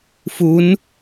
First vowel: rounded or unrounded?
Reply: rounded